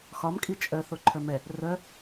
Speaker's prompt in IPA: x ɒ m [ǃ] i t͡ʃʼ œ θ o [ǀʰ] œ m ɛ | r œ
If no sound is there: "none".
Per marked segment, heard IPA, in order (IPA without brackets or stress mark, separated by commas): kʼ, ǃʰ